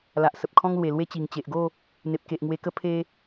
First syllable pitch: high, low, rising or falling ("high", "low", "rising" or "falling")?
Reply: low